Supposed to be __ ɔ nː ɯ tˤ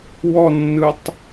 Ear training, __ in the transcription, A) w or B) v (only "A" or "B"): A